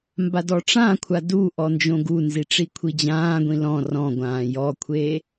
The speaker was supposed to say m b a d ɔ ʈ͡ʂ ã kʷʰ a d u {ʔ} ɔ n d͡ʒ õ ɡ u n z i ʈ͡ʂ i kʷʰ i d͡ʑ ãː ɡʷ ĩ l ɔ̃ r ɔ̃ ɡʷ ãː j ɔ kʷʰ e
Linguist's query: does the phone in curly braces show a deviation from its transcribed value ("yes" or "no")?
no